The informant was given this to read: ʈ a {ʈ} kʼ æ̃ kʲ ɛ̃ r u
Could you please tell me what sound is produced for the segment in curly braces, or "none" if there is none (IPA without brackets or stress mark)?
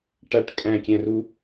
ʈ